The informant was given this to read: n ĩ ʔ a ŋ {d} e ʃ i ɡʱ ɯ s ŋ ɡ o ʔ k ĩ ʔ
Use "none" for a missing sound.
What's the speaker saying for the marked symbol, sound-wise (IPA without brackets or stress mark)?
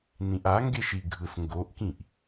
ɡ